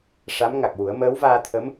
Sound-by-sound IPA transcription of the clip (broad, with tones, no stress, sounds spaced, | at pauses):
ʂ a˧˥ m ŋ a˨˩ k̚ w u˨˩˦ ə̯ m əː˧˥ w v aː˧ t̪ʰ ə˧˥ m